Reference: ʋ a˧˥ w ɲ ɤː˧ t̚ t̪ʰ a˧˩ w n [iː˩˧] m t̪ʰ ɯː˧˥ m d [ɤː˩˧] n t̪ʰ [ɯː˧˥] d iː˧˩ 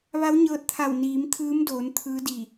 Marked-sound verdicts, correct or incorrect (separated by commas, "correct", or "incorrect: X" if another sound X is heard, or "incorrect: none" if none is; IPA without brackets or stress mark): correct, incorrect: oː˩˧, correct